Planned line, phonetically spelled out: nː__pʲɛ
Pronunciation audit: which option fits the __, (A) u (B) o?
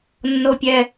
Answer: B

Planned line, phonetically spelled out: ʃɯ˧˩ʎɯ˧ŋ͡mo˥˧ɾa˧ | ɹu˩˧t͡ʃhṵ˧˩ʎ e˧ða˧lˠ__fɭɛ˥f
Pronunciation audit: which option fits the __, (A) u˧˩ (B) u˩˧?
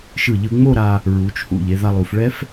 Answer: B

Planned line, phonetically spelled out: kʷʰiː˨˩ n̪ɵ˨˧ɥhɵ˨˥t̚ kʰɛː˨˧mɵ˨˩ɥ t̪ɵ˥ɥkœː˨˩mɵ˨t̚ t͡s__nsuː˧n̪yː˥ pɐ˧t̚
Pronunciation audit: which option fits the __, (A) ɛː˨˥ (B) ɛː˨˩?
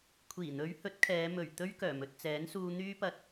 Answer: A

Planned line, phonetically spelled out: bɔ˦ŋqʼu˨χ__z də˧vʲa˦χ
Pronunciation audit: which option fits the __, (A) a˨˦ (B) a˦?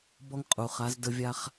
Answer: A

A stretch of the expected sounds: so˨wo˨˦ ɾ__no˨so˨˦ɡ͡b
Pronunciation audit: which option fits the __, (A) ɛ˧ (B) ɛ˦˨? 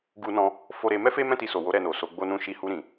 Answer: B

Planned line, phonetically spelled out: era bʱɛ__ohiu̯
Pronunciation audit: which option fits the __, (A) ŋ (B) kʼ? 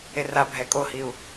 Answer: B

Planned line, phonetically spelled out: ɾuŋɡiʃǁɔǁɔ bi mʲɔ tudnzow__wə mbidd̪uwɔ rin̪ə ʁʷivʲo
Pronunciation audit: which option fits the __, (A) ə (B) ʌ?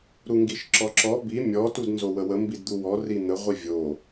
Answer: A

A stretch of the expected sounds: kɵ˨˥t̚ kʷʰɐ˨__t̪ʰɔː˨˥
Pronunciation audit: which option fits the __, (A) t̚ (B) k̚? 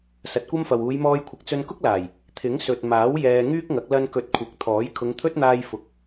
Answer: B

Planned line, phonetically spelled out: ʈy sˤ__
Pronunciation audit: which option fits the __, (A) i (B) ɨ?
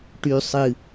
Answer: B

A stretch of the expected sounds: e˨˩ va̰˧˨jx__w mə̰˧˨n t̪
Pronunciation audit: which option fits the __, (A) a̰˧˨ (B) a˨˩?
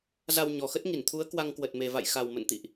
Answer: B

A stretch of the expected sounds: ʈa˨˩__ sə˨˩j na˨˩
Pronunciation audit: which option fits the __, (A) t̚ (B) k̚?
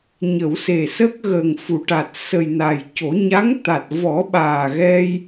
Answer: A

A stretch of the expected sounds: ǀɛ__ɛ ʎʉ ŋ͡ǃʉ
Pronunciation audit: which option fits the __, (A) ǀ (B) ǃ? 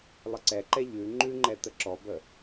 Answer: B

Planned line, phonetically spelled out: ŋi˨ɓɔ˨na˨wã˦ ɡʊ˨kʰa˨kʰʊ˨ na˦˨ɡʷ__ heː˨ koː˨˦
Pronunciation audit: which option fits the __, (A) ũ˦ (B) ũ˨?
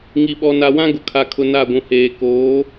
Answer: B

